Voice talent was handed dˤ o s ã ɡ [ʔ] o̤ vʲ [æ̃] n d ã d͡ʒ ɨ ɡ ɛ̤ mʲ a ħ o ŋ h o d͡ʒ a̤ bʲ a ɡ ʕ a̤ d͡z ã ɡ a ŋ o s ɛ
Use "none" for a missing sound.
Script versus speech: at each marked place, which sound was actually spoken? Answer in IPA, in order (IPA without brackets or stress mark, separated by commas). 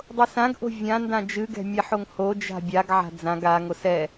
ʔ, ã